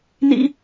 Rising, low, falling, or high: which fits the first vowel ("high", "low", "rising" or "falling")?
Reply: high